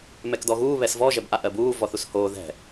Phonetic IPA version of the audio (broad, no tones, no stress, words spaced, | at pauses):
mɛkdɔɣuː βɛsvɔ ʒɛbʔaʔɜbuː vɔθushoː ðɛ̤